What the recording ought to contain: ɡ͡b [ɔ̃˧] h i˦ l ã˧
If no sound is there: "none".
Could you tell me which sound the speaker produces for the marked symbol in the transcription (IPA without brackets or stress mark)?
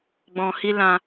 ɔ̃˧